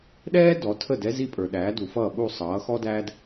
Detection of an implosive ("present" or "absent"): present